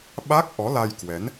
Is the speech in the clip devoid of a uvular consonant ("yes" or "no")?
yes